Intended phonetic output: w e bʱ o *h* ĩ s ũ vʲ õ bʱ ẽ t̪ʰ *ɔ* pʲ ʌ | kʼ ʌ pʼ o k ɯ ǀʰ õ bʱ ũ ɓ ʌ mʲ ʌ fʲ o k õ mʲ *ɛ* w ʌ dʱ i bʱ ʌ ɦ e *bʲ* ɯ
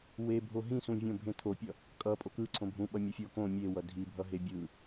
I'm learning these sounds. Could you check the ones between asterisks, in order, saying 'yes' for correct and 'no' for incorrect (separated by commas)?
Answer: no, no, no, yes